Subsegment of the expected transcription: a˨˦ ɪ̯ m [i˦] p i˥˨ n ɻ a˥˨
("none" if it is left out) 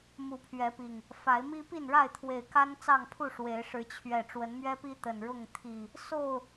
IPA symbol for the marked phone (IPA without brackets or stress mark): i˦